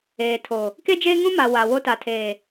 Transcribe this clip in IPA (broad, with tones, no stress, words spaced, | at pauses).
eː˨tʰo˨ | ke˦d͡ʒeː˦ŋũ˦ma˨ wa˨wo˦ ta˨tʰeː˨